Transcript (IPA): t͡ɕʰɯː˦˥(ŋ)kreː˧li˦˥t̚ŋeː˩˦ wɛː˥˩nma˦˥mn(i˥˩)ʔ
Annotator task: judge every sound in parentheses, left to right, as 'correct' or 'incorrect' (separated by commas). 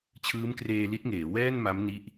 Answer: incorrect, incorrect